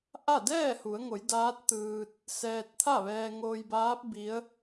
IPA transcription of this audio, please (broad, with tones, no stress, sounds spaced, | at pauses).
ʔ a˥˨ d ɛː˥˨ h u˩˧ ə̯ ŋ o˩˧ j d aː˧˥ t̚ t̪ ɯː˧ t̚ | s ɛː˧ t̚ t̪ʰ a˥˨ ʋ ɛː˧ ŋ oː˧ j b aː˧˥ p̚ b i˧˥ ə̯